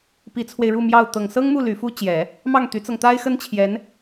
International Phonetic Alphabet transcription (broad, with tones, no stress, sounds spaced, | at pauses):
p i˧˥ t͡sʰ w e˧ ɪ̯ ɻ u˥˧ m j ɑ˥˩ ʊ̯ t̪ ɤ˨˩ ŋ s ɤ˥ ŋ m u˥˩ l y˧˥ f u˥ t͡ɕ j ɛ˨˩˦ | m ɑ˥˩ ŋ t̪ y˧˥ t͡s ɤ˧ ŋ t̪ a˥ ɪ̯ x ə˥ n t͡ɕʰ j ɛ˧˥ n